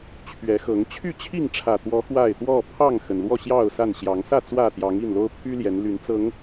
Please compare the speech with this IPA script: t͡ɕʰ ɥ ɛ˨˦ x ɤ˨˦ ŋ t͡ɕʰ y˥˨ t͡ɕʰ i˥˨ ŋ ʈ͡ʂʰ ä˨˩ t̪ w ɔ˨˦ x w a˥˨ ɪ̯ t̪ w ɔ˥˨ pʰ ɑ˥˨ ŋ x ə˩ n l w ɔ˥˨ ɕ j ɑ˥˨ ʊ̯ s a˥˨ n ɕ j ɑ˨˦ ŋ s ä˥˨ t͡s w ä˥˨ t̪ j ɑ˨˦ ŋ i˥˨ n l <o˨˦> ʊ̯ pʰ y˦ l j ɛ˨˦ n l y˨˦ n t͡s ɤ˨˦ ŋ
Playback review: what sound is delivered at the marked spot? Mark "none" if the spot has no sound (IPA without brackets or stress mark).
o˦